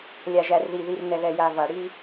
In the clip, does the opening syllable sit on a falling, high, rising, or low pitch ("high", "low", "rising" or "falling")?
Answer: low